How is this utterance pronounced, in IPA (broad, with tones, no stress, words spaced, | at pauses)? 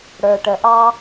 ɽə˞˩ʈə˩ʔɑ˧